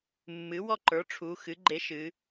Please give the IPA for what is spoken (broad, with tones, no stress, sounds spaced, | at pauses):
mː ɨ˩˥ w ɔ˥˨ ǃ ə˞˩˥ ʈ͡ʂʰ u˩˧ x ɨ˩˥ ɡ͡ǃ e˧˥ ʃ ɨ˩˧